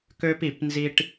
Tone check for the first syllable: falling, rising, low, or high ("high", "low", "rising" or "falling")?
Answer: high